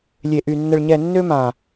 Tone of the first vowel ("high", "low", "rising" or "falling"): low